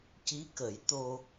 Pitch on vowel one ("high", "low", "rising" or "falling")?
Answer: rising